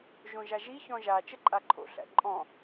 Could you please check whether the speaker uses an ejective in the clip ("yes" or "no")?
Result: yes